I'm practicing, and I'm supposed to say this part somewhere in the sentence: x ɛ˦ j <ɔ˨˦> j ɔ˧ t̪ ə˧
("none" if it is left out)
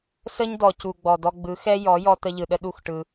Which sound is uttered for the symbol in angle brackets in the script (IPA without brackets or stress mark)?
ɔ˨˦